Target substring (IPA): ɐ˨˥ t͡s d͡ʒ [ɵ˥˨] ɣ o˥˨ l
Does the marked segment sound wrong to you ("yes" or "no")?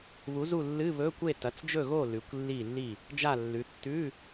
no